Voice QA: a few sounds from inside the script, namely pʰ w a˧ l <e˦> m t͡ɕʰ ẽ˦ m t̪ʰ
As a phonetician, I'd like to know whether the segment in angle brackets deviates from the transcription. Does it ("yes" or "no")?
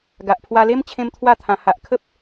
no